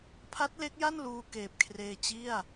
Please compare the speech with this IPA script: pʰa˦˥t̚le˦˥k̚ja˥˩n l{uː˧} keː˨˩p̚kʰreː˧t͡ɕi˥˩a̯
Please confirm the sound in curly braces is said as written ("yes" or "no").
yes